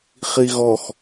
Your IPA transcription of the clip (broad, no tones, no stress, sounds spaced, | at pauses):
χ i ɣ ɔ x